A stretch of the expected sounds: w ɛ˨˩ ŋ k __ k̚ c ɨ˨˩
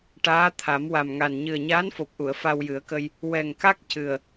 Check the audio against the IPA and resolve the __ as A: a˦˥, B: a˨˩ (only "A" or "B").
A